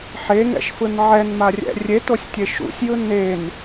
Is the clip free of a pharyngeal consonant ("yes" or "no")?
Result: no